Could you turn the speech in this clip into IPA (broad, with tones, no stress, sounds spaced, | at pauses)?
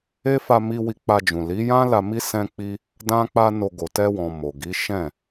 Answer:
e˦ f a˧ m i˧ w i˧ k͡p a˧ d͡ʒ ũ˨ l i˨˦ j ã˦ l a˧ m i˦ s ɛ̃˦ k͡p i˦ | d ã˦ k͡p a˦ n o˧ ɡ o˨ t ɛ˧ w ɔ̃˨ m o˨ ɡ i˨˦ ʃ ɛ̃˦˨